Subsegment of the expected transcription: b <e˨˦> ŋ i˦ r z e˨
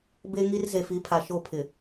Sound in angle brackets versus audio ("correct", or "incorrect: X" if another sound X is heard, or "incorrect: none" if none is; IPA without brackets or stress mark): incorrect: e˦